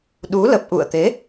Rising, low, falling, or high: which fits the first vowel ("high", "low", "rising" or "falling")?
rising